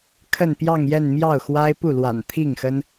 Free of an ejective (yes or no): yes